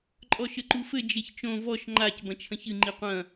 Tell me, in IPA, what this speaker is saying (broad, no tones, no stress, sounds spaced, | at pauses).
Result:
ǃʼ ɔ ʃ ɘ ǃ u f ɘ d͡ʒ e ç t͡ʃ õ v ɔ ʃ ŋ͡ǃ a c b ɐ̃ t͡ʃʰ ɐ̃ ç ɨ ŋ͡ǃ i qʷ ɐ̃